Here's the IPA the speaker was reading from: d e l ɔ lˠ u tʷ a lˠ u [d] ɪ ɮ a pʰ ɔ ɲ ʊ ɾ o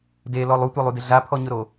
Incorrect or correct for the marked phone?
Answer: correct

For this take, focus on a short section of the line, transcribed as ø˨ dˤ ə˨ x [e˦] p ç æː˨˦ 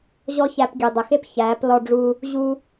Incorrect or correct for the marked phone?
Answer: correct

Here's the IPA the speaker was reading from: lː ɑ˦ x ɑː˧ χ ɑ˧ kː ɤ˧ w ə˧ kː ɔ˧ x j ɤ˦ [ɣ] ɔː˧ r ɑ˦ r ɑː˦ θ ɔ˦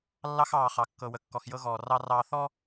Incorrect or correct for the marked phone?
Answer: correct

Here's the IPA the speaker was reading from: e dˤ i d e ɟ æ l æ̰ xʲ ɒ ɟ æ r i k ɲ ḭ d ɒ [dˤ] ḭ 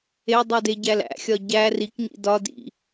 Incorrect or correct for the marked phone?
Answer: incorrect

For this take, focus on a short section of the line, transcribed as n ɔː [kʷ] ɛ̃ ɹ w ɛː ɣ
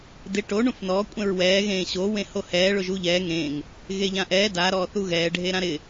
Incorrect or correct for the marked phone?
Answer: incorrect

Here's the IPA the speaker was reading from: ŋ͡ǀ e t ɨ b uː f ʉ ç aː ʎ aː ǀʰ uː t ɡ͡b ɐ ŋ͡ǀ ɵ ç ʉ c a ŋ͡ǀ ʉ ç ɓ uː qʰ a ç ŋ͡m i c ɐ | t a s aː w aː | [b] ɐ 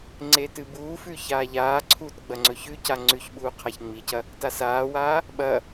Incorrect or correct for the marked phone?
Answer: incorrect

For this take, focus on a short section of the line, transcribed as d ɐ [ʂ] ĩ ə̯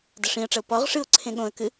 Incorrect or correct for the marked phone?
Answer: correct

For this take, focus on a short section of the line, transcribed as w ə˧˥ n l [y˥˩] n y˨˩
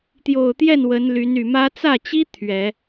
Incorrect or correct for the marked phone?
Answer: incorrect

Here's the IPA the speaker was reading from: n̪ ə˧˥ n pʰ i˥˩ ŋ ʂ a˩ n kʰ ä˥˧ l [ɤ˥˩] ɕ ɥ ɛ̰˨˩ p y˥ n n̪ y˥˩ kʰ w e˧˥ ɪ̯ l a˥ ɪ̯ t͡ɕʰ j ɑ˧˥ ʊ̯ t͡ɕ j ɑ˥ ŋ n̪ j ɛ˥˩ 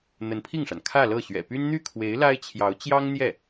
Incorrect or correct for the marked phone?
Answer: correct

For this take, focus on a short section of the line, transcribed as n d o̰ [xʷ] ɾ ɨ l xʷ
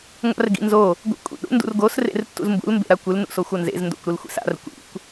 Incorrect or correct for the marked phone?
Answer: incorrect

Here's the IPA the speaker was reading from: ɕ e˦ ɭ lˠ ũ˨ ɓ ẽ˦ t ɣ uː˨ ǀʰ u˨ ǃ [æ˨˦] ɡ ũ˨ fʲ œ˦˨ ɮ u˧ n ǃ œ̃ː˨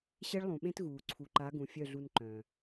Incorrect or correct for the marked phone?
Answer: incorrect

